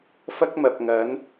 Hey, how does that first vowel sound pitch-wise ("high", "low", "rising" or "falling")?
high